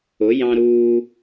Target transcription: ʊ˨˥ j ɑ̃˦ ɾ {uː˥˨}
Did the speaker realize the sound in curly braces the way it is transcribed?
no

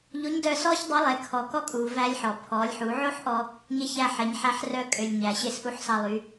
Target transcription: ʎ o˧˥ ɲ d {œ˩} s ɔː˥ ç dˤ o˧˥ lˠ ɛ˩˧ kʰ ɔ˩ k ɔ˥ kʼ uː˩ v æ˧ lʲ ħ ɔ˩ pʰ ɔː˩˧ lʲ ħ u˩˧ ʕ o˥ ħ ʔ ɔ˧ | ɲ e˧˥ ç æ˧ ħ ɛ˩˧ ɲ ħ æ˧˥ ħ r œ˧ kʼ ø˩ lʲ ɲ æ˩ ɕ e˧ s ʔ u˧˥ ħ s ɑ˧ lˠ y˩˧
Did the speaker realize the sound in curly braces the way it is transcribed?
no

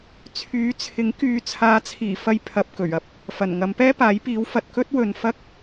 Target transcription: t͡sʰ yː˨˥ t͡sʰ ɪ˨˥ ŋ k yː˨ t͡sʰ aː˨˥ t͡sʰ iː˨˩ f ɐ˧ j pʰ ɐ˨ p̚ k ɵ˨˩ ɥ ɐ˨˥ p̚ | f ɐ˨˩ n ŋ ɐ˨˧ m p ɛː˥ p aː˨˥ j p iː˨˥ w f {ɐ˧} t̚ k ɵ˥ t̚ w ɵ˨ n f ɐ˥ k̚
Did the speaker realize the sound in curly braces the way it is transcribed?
no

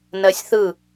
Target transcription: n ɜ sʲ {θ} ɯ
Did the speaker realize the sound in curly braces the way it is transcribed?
yes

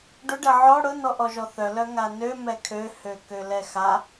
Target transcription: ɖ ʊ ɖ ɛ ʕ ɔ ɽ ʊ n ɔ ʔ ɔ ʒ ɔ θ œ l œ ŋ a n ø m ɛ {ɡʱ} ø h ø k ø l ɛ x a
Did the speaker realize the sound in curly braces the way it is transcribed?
no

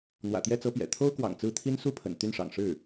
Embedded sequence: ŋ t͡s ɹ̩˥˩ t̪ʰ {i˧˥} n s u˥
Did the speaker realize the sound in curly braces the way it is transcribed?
no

